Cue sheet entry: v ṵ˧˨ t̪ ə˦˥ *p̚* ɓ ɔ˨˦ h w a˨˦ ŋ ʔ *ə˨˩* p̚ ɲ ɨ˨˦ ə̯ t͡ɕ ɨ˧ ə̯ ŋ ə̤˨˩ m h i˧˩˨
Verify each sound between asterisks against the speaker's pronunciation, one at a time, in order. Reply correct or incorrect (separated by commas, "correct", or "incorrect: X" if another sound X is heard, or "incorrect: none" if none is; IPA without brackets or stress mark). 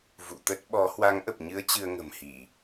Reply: incorrect: t̚, correct